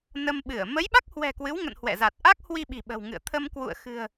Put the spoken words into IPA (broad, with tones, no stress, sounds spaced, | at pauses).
n ə˧ m ɓ ɨ˧˩ ə̯ m ə˨˦ j ɓ a˦˥ k̚ h w ɛ̤˨˩ k w ɨ˨˦ w ŋ ə̰˧˨ n h w ɛ̰˧˨ z a˨˩ t̚ ʔ a˦˥ k̚ h w i˧ ɓ i̤˨˩ ɓ ə̤˨˩ w ŋ ɨ̰˧˨ ə̯ t̪ʰ ə˧ m k w ṵ˧˨ ə̯ x ɨ̤˨˩ ə̯